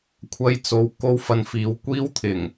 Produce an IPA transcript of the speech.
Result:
kʷʰ ɐ˧ j t͡s o˨˥ w k o˥ w f ɐ˧ n f iː˨˧ w kʷ iː˥ w t̪ʰ ɪ˨˩ ŋ

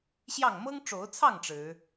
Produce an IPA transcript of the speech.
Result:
ɕ j ɑ˥˨ ŋ m ɤ˦ ŋ ʈ͡ʂ o˨˦ ʊ̯ t͡sʰ ɑ˥˨ ŋ ʈ͡ʂ ɻ̩˨˦

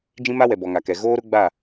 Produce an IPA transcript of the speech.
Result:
d͡ʒ ĩ˦ m a˦ w ɛ˨ b ɔ˨ ŋ a˨ k ɛ˨ ɣ oː˦ ɾ ʊ˦ ɡ͡b a˦˨

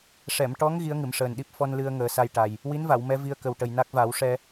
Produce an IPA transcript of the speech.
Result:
ʂ ɛ˨˩˨ m ʈ ɔ˧˥ ŋ ɣ i˧˥ ə̯ ŋ ɨ˨˩˨ m ʂ əː˨˩ n ɗ i˦˥ p̚ f ɔ˧ n l ɨ˧ ə̯ ŋ əː˨˩˦ s a˧ j ʈ a˨˩ j | w i˧˥ n v a˨˩˨ w m ɛ˧˥ v i˧ ə̯ k ə˨˩ w ʈ ə˨˩ j n a˦˥ k̚ v a˨˩˦ w ʂ ɛ˧

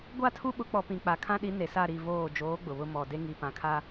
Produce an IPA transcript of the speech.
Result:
ɡʷ a˦˨ tʰ u˦ ɓ ʊ˨˦ k͡p ɔ˨ p ĩ˨ k͡p a˨ kʰ ã˦ ɗ i˨˦ n e˨ s a˦˨ ɾ i˦˨ v oː˦˨ d͡ʒ oː˨˦ ɡ͡b ʊ˨ β ʊ˦ m ɔ˨ d e˦ ŋ i˨ p ã˨ kʰ a˦

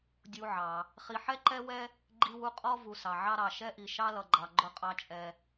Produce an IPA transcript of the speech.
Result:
dʲ u˨ ʕ ɑ˩ | χ i˨ ħ ɛ˥ ǃ ɛ˥ w ɛ˥ | ɡ͡ǃ i˦ w u˦ qʼ ɔ˥ v u˨ s ɑ˩ ʕ ɑ˦ ɾ ɑ˩ ʃ ɛ˦ ʔ i˩ ʃ ɑ˦ l ʌ˩ ɡ͡ǃ ɑ˩ ɡ͡ǃ ʊ˨ qʼ ɑ˨ t͡ʃʼ ɛ˩

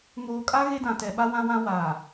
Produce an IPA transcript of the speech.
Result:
ŋ oː˨ kʼ a˦ ɣ e˦ d ã˨ t ɛ˨ ɓ a˦ w ã˦ w ã˦ w aː˨

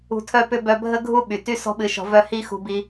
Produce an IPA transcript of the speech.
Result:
ṳ˧ tʰ œ˦ p ʏ˦ b œ˧ bʱ ə˦ ɡʱ u˦ ɓ y˨ t y˦ s ɔ̤˦ ɓ ɨ˧ ʃ ɔ̤˧ v œ˦ h i˦ x ṳ˧ b i˧

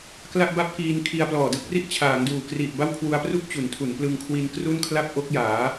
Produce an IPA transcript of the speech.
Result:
k l a˥˩ ʔ b a˥˩ p̚ k iː˧ n kʰ i˧ a̯ p l ɔː˨˩ d ɯ˥˩ k̚ r i˥˩ ʔ t͡ɕʰ aː˩˦ ŋ d uː˨˩ k r i˨˩ ʔ b a˥˩ w kʰ w u˧ a̯ p r u˥˩ k̚ t͡ɕ u˩˦ n tʰ u˩˦ n p l ɯ˧ ŋ kʰ w i˧ n k r u˥˩ n kʰ l a˥˩ p̚ ʔ o˦˥ k̚ j aː˩˦

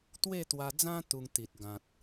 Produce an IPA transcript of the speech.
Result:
t̪ w e˥˧ t̪ w a˧ d͡z ã˦ t̪ u˧ ŋ t̪ i˨ t̚ ɡ ã˨ t̚

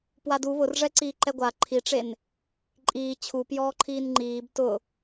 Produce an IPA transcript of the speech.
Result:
p w a d u β ʊ r ʐ ɛ ǀ iː ǃ ɛ ɡʷ a ǃʰ i ʈ͡ʂ e n | ǃʼ iː t͡ɕʰ u p j ɔː ǃʰ iː n ŋ͡ǃ iː b t ʊ

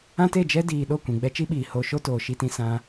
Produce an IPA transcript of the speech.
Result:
ã˦ t e˦˨ d͡ʒ ɛ˦ d iː˧ ɗ o˦˨ kʷ ĩ˨ ɡ͡b ɛ˧ t͡ʃ i˦ ɓ iː˨ h o˧ ʃ o˦ t oː˨ ʃ i˧ t ĩ˧ s ã˦

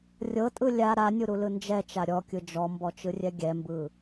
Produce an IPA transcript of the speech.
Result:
rʲ ɤ tʼ ɯ lʲ a ɾ a nʲ u ɾ u l ɯ n d͡ʒ ɛ t͡ʃ a ɾʲ ɔ kʲ ɯ d͡ʒ ɔ m b ɔ t͡ʃ ɯ rʲ ɛ ɡʲ ɛ m b ɯ

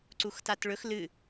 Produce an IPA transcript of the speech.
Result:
ǀ u x t a t ɭ ɵ x l ɨ

